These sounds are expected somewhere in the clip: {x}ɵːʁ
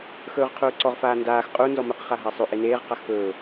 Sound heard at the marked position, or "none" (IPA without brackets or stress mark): x